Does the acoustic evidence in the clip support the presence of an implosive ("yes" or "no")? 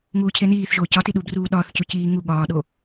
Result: yes